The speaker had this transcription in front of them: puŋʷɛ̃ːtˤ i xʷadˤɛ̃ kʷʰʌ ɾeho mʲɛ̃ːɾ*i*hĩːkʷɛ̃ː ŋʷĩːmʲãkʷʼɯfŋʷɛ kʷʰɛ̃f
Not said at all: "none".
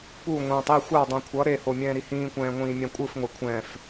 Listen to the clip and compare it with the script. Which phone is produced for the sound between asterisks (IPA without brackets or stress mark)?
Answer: i